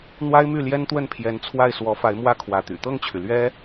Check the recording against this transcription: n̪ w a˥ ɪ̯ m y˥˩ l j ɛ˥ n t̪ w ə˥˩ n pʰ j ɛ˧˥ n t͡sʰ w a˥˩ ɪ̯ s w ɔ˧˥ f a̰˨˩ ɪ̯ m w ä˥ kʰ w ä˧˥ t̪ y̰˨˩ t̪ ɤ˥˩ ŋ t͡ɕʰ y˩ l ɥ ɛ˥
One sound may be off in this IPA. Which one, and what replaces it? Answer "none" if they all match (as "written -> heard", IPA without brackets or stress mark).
a̰˨˩ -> a˧˥